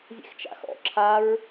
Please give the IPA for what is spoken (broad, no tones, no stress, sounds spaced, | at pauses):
zʲ ḛ x t͡ʃ a̰ x ɔ̰ ǁʰ a ɹ